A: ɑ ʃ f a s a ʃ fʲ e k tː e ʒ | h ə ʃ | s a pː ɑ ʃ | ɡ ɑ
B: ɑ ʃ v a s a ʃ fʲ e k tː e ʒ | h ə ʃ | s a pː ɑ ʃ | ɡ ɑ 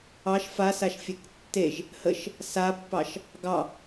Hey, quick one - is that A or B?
A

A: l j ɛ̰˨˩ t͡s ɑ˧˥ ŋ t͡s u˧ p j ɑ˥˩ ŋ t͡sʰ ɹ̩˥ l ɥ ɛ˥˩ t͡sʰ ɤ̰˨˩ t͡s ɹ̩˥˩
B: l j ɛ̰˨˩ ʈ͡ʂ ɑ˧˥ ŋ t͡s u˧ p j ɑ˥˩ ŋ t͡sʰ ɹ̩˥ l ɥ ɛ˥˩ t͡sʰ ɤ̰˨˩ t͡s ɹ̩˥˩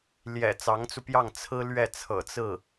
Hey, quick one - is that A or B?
A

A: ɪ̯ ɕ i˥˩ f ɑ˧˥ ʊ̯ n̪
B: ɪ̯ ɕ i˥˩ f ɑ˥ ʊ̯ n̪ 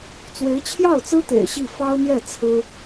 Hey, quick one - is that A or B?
B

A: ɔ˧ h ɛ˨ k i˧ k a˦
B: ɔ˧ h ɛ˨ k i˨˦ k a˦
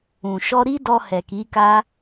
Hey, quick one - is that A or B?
B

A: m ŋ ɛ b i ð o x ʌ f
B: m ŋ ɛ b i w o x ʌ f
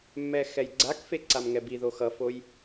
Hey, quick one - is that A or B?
A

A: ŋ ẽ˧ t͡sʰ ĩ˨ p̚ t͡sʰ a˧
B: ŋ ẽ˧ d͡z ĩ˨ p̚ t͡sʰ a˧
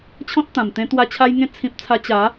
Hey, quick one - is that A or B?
A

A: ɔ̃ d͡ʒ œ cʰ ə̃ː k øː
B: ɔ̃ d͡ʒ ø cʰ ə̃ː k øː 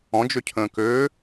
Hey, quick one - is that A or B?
B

